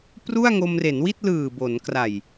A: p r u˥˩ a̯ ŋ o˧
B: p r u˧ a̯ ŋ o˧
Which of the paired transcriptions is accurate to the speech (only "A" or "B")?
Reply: A